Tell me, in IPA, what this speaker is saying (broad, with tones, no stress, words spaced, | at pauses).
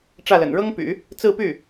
ʈ͡ʂä˥˩lə̰˨˩n ɻɤ˥ŋpy̰˨˩˦ | t͡sɹ̩˥˧py˥˩